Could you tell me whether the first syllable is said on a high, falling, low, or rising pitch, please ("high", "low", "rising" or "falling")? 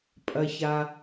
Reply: low